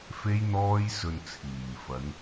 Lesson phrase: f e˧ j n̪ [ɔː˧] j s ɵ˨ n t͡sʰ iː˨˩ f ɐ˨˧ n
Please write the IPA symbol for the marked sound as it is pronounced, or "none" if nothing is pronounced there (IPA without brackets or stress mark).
ɔː˧